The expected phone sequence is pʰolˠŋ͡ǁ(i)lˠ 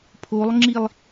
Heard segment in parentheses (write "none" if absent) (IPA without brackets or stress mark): i